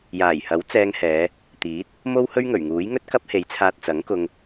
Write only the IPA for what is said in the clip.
j aː˨˩ j h ɐ˨˥ w t͡s ɛː˧ ŋ h ɛː˨˧ | t̪ iː˨˥ t̚ | m o˥ w h ɵ˥ ɥ ŋ ɵ˨˩ ɥ ŋ uː˨˥ j ŋ ɵ˥ t̚ k ɐ˥ p̚ h e˨˥ j t͡sʰ aː˧ t̚ t͡s ɐ˨˥ ŋ k ʊ˧ ŋ

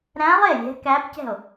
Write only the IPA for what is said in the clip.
ɾ æ̃˧˥ lˠ e˥˩ lʲ ɛ̤˧˥ k æ˧˥ p c ɛ̤˥˩ o̯

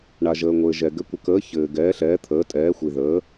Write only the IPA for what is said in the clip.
ɳ a˨ ʒ əː˨ ŋʷ ɘː˨ ʒ ɛ˨ ɡ ɘ˨˦ kʷ ə˨ k əː˨˦ ç ɘː˨ ɡ ɛː˨˦ ɬ ɛː˨˦ t̪ʰ əː˨˦ tʼ ɛː˨˦ xʷ i˨ ð əː˨˦

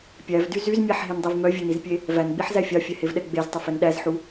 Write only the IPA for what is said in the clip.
pʲ æ v d y z y z mʲ æ ħ ɦ e n dˤ e v m œ vʲ ø n i z pʲ e | v æ n ɡ͡b i ħ z æ fʲ ɑ fʲ ɛ h e v ɗ ɛ ɡ͡b e z tˤ ɵ f ɛ n ɗ æ z ħ u

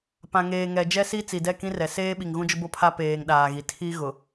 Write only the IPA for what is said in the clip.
p ã˨ ŋ eː˨ ŋ ɛ˨ d͡ʒ ɛ˦ s i˦ t͡s i˨ d ɛ˦˨ k ĩ˦ r ɛ˨ s eː˦ ɓ i˨ ŋ ɣ ũ˦ d͡ʒ ʊ˦ b o˦ pʰ a˦ p eː˨ ŋ ɗ aː˨ ɣ i˨ tʰ i˦ ɣ ʊ˨

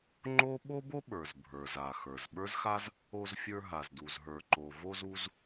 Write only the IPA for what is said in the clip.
ŋ͡ǃ o˥ ɓ o˥ b o˥ ɓ ə˞˩ z bʱ ə˞˩ z a˩ x ə˞˩ z ɓ ə˞˥ z x a˥ z | o˧ z fʲ ə˞˧ ɦ a˩ z d u˩ z ɦ ə˞˩ ǃ o˩ v o˧ z u˧ z

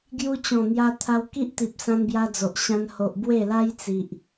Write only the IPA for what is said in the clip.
ɡ j u˧ t͡ɕ ɔ̃˨˩ n̪ j a˧ t̪ʰ a˧ w k i˦ ʔ t̪ i˨ p̚ s ã˧ n b j a˧ d͡z o˨ ʔ ɕ ã˧ n h o˨ ʔ b w e˥˧ l a˦ j t͡s i˨ ʔ

